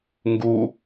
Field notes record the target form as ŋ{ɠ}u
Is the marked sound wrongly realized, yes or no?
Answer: yes